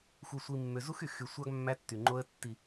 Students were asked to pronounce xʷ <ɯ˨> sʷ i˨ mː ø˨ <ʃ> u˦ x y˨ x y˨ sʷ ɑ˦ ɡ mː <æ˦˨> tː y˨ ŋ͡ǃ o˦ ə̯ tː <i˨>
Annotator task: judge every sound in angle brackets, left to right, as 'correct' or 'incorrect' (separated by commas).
correct, incorrect, incorrect, correct